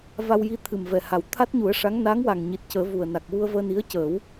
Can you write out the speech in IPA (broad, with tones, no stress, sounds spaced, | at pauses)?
v a˧ w j i˧ t̪ʰ ɨ˨˩ m v ɛ˨˩ h a˨˩ w t̪ʰ a˦˥ t̚ ɲ u˨˩˦ ə̯ ʂ a˧˥ ŋ n a˧˥ ŋ w a˨˩ ŋ ɲ i˨˩ t̚ c əː˨˩˦ v u˨˩ ə̯ n a˨˩ k̚ w u˧ ə̯ v əː˧ n i˧˥ ə̯ c əː˨˩˦ w